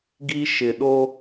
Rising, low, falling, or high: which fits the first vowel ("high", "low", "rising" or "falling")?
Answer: high